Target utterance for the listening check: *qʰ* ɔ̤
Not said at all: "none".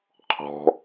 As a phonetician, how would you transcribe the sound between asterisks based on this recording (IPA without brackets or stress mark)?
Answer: qʰ